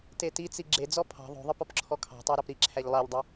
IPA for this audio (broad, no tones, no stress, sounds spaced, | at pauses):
t e t i t͡s i ɡ͡ǁ e d͡z ɔ pʰ ɑ̤ ðˤ o̤ ðˤ ə p ɔ p ǁʰ ɔ kʰ ɑ̤ tˤ æ ɾ ɑ p ɾ i ǁʰ æ ʎ lˠ æ ʎ dˤ ə